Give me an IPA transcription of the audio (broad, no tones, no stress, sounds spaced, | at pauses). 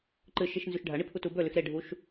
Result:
ǃ ɨ ʃ i ʃ n z ʉ ʃ ɖʱ ɐ ɳ i pʰ u t u b ɵ l ʉ x ɾ e ɖʱ u ʃ